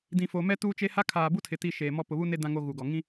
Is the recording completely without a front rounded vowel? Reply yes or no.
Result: yes